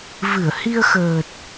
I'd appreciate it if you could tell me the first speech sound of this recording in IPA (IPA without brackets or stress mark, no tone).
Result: v